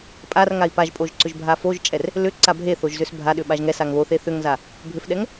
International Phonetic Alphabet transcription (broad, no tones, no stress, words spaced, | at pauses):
pʼarŋai̯ paʒpʼoʒ ǀʏʒbʱafoʒt͡ʃʼɛr | lʏ ǀabʱeθoʒ zʏsbʱaɗʏ ɓaʒŋɛsaŋ βoθe θʏŋza | bʱʏfɗɛŋ